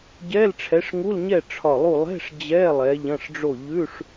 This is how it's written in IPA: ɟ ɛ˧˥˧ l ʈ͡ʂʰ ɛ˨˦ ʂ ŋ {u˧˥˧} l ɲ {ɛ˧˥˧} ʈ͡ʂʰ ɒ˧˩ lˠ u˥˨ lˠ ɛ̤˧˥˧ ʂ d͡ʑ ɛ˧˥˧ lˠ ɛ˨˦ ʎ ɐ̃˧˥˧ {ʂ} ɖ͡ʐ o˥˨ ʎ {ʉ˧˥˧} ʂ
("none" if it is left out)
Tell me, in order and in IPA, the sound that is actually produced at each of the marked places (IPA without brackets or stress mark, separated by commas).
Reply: u˧˥˧, ɛ˥˨, ʂ, ʉ˧˥˧